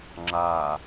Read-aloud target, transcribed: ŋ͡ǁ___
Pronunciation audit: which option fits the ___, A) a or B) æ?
A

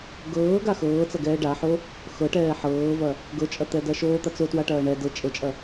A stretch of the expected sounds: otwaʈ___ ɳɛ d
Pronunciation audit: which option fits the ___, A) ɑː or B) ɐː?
B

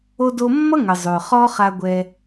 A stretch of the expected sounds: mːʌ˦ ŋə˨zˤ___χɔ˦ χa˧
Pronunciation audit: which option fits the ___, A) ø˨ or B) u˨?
A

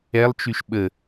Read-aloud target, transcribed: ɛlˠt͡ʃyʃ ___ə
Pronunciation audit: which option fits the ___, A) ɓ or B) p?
A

